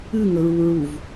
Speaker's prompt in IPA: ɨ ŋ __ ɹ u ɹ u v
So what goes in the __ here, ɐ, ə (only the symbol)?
ə